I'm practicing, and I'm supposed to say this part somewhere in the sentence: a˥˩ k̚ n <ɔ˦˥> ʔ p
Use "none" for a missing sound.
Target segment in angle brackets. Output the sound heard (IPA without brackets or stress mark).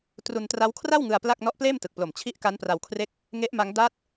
ɔ˦˥